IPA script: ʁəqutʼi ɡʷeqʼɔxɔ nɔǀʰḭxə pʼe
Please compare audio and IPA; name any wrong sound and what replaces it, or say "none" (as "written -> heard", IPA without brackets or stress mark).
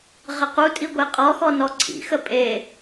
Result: none